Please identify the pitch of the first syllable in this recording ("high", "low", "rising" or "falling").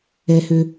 low